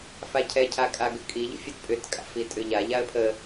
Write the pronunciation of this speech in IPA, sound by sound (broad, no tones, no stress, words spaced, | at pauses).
facʰɛcʰakʼa ɡʏkʼiʎə̰fʲat pʼʏtkʼa̰ fitʼʏʎa ʎaə̯pʰə